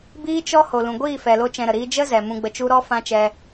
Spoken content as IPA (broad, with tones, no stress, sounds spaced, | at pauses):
b iː˦ t͡ʃ ɔ˦ h o˨ l ũ˨ ɡʷ iː˦˨ f ɛ˨ l o˦ t͡ʃ ɛ̃˧ ɾ ə˨ ɾ iː˦ d͡ʒ ə˦ z ɛ˨ m ũ˧ ɡ͡b ə˧ t͡ʃ u˦ ɾ ɔ˦ f ã˦ t͡ʃ ɛ˧